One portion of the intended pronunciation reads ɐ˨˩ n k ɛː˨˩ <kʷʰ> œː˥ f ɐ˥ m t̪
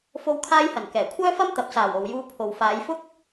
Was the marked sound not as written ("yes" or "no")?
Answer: no